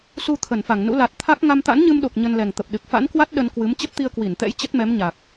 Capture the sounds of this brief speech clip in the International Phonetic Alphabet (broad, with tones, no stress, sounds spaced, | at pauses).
s u˧ t̪ʰ ə˧˩ n f a˧˩ ŋ n ṵ˧˥ l a˨˩ t̚ t̪ʰ a˦˥ k̚ ŋ a˧ m t̪ a̰˧˥ n ɲ ɨ˧ m ɗ o˨˩ k̚ ɲ ə˧ n l ɛ˨˩ ŋ t̪ ə˨˩ p̚ ɗ ɨ˨˩ k̚ f a̰˧˥ n k w a˦˥ t̚ ɗ ə˧ n k w ɨ˨˦ m t͡ɕ ə˦˥ p̚ t̪ i˧ ə̯ k w i˧˩ n t̪ ɛ̰˧˥ j t͡ɕ ə˦˥ t̚ m ɛ˨˦ m ɲ aː˨˩ k̚